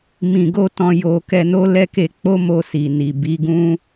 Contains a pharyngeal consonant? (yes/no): no